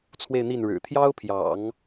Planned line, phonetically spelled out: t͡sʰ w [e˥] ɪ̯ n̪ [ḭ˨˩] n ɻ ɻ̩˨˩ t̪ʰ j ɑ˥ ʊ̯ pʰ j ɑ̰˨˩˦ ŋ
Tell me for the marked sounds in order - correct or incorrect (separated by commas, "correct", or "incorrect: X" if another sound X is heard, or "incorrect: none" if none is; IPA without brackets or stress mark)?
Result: incorrect: e˥˧, incorrect: i˥˩